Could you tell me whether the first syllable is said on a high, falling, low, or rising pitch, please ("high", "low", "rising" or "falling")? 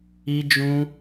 high